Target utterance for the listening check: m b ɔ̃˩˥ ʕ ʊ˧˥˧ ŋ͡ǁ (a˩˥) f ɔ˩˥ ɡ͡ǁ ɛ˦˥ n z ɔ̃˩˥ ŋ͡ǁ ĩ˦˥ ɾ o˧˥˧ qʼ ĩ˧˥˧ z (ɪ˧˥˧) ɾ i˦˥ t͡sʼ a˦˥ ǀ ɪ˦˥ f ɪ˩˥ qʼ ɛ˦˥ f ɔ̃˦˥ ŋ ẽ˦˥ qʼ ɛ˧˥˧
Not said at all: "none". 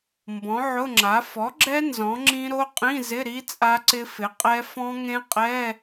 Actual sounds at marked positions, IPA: a˩˥, ɪ˧˥˧

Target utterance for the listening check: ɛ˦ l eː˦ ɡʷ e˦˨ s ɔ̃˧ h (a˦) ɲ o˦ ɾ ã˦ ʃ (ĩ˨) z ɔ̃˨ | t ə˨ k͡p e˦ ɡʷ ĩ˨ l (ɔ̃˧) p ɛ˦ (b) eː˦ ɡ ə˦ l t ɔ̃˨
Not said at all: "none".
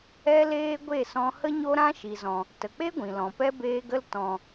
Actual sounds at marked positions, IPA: ə˦, i˨, ɔ̃˨, b

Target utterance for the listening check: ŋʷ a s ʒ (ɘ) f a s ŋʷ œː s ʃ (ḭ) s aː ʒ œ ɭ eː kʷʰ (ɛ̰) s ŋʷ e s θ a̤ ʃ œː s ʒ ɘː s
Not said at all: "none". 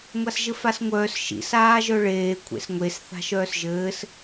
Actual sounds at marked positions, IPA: ɘ, ḭ, ḛ

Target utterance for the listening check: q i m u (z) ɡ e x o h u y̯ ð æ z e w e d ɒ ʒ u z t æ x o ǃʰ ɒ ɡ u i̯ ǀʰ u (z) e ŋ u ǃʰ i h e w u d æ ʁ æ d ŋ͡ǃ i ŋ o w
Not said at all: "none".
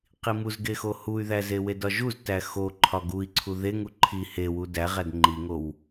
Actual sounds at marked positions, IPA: z, ð

